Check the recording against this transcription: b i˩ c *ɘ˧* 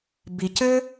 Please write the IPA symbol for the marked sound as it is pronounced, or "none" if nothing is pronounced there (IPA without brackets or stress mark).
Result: ɘ˧